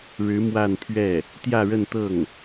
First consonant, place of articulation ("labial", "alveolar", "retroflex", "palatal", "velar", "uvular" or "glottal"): retroflex